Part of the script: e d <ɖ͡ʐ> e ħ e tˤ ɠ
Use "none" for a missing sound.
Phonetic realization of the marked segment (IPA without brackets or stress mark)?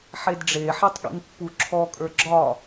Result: ɖ͡ʐ